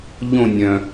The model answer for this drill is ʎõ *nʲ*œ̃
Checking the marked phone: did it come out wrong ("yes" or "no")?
no